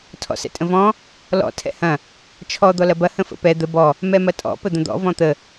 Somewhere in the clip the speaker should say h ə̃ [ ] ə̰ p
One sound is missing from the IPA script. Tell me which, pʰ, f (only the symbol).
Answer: f